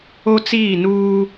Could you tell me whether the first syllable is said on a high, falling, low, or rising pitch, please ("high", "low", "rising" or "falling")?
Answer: high